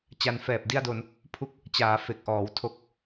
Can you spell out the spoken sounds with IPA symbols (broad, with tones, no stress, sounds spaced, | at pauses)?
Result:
t͡ɕ a˧ n f ɛː˨˩ p̚ d i˥˩ a̯ d o˧ n | pʰ u˥˩ k̚ | t͡ɕ aː˩˦ f e˨˩ k̚ ʔ ɔː˩˦ w tʰ o˨˩ k̚